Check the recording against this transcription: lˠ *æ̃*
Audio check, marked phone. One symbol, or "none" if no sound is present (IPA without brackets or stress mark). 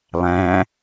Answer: æ̃